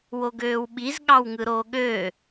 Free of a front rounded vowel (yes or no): no